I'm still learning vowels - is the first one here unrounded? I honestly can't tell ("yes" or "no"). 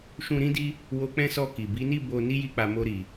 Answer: no